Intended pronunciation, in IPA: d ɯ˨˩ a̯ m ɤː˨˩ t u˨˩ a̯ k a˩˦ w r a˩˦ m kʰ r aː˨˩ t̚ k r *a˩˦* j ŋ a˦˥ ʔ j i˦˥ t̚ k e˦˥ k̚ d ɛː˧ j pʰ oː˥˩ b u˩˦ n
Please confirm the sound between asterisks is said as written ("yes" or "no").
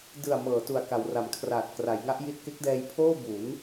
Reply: yes